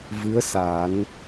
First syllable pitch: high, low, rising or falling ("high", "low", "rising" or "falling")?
rising